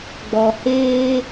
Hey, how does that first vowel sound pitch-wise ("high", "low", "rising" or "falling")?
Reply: low